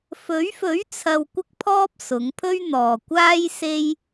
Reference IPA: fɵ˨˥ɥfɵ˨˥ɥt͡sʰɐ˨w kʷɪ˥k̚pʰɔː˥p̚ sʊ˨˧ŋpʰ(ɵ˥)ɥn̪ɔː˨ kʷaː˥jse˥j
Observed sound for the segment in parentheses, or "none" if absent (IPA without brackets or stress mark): ɵ˥